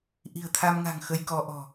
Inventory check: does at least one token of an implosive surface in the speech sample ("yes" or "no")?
no